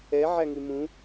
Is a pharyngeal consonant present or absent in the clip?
present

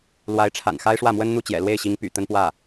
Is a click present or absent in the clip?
absent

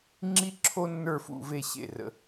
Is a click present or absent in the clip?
present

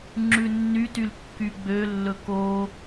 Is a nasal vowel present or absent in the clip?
absent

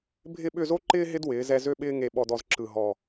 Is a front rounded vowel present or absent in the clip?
present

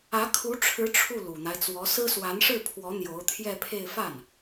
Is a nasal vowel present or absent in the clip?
absent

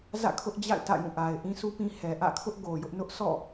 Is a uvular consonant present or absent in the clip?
absent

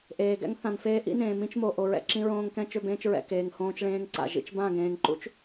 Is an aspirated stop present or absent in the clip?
absent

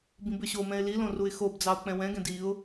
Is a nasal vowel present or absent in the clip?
present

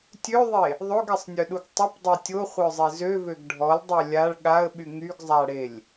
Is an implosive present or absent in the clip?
present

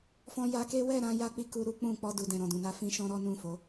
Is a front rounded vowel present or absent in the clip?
absent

